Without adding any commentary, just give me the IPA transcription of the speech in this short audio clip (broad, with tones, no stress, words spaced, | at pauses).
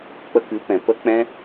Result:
k͡pə˧kɨ˨˦pɛ̃˨ pə˦ k͡pɛ̃˦